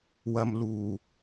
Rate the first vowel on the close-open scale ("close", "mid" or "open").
open